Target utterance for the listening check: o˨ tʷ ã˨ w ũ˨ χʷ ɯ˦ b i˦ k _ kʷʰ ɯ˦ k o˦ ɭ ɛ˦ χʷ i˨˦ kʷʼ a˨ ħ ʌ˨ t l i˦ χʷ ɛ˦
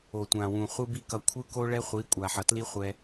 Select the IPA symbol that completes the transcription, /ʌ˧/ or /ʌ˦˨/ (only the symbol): ʌ˧